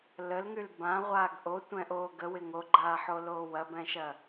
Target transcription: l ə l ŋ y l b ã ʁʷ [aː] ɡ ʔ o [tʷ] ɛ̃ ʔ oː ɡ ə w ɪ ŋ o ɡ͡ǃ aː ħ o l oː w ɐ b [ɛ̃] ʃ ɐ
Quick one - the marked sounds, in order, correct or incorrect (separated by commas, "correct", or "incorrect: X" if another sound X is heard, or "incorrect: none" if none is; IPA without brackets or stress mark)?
correct, correct, correct